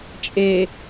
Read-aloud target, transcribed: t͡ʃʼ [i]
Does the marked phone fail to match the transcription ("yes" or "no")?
yes